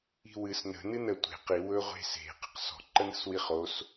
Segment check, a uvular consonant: present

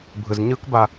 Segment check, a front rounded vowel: absent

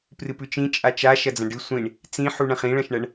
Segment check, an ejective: present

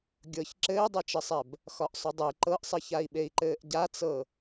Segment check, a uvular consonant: absent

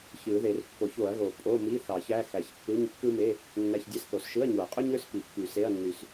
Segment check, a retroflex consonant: absent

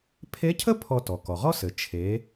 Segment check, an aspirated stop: present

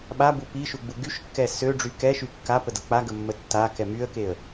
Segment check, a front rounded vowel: present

